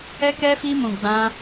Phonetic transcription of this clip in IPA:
ɛ˦ k ɛ˦ f i˦ m ũ˧ ɡ͡b ã˦

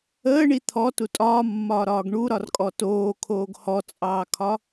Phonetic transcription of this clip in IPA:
əː ɳ i t̪ʰ ɔ t u tʼ ɒː mː ɒː ɾ ɒː ɡ ɳ u ɾ ɒ r kʼ ɔ t oː kʰ oː ɡ h ɔ t͡sʼ ɑː kʰ ɒ

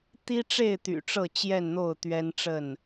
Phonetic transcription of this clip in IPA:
t̪ i˦ ʈ͡ʂ e˥˨ ɪ̯ t̪ y̰˨˩ ʈ͡ʂ ɤ˥˨ t͡ɕ j ɛ˥˨ n n̪ o˥˨ ʊ̯ t̪ ɥ ɛ˦ n ʈ͡ʂ ə˥˨ n

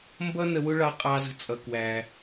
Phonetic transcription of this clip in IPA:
m b ʌ˥ n ə˧ w ʊ˥ ɭ ɑ˧ qʼ ɑ˧ z ə̤˧ t͡sʼ ʌ˩ k w æ˩

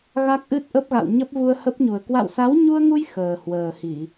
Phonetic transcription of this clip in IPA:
ɣ a˦˥ k̚ ʔ ɨ˦˥ t̚ ʔ ə˦˥ p̚ ɣ a̰˧˨ w ɲ ə˦˥ p̚ v u˧ ə̯ h ə˦˥ p̚ ɲ u˨˩ ə̯ k w a̰˧˨ w s a˨˦ w ɲ u˧ ə̯ ŋ u˧ j x əː˨˩ h w əː˨˩ h i˧˩˨

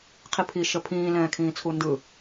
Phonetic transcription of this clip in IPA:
qʰ i pʰ i ʃ ə pʰ ĩː l ɛ̃ː kʰ ĩː t͡sʰ u n d ɯ

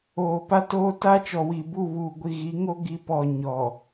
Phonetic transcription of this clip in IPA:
oː˨ p a˦ t oː˦ t a˦ t͡ʃ ɔ˨ w i˨ b u˦˨ β uː˨ ɡʷ i˨ ɣ i˨˦ ŋ o˦ ɡ i˦ p ɔ˦˨ ɲ ɔ˨

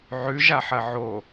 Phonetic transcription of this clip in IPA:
ʕ ʉ ʒ a ħ ɐ ʕ o

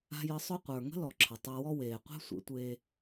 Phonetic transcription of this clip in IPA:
a̤˧ j ə˨˦ sˤ ʊ˦ qʷ ə˞˨ ŋ ə̤˦ l ɔ˨ ǁʰ ə˨ tˤ ɛ˧ w ɔ˦ w eː˨ qʷ ɛ̤˦ sʷ ḛ˧ tʷ eː˧

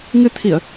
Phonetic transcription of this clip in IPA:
ŋ ɨ˧ t̪ʰ i˧˩˨ ə̯

